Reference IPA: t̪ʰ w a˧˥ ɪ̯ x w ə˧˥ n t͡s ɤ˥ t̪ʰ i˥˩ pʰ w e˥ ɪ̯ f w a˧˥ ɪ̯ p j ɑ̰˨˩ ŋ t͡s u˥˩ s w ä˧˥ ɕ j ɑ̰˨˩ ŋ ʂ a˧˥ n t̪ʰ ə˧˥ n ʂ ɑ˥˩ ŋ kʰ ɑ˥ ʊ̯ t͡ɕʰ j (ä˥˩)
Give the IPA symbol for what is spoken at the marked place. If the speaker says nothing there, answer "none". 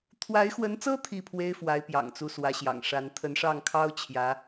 ä˧˥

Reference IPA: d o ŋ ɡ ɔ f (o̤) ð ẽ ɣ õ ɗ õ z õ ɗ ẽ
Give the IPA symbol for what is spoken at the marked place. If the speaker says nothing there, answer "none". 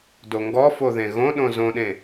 o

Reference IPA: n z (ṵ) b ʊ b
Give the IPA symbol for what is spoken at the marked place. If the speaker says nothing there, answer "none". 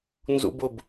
ṵ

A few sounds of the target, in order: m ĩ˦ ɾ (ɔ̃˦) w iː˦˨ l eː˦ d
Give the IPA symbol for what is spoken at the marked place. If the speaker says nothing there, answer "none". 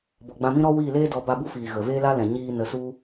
ɔ˦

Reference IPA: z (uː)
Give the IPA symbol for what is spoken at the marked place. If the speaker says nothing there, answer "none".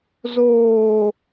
oː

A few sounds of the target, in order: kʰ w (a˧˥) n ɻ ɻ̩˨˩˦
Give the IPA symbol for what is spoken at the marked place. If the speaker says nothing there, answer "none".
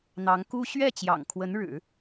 ə˧˥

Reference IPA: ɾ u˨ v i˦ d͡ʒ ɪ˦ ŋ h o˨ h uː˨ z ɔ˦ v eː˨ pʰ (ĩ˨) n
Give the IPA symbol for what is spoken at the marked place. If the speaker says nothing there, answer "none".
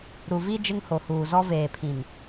ĩ˨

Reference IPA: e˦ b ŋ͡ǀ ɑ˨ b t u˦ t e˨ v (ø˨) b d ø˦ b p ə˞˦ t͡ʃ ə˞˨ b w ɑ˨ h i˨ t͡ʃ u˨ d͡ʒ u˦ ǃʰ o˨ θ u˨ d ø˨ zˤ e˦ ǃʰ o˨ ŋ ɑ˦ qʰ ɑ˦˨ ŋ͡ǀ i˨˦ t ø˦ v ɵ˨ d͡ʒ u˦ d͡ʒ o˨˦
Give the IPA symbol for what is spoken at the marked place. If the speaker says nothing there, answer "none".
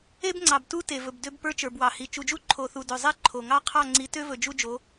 ɵ˨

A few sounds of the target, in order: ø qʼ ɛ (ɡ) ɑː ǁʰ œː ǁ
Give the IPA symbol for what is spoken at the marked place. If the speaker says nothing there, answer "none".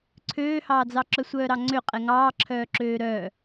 ŋ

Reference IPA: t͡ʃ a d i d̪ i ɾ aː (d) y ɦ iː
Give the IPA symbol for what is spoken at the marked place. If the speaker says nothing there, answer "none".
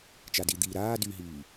d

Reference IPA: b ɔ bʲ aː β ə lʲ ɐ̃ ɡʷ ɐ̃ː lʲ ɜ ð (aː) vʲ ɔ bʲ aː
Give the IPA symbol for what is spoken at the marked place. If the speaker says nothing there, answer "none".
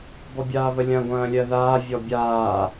aː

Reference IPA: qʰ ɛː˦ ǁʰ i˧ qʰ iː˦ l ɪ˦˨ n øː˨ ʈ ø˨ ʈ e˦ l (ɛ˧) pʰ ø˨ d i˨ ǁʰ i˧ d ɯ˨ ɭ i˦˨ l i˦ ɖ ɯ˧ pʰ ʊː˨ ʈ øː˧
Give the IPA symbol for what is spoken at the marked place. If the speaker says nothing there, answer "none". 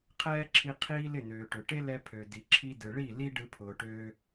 ɛ˧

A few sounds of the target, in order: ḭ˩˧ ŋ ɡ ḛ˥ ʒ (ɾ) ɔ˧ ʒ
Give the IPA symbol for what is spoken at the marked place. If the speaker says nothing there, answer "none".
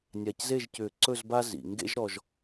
ɾ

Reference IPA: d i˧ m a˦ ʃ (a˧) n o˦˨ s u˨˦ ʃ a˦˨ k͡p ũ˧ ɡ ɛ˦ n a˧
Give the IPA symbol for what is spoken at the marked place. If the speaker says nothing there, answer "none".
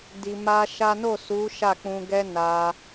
a˦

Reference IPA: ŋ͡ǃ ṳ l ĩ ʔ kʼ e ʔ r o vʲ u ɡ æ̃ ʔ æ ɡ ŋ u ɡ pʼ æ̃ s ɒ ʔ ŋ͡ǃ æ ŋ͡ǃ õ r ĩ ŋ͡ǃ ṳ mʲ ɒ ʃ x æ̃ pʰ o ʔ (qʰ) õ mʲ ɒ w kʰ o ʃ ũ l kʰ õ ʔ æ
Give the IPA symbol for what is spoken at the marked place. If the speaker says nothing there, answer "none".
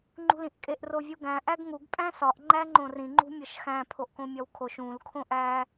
k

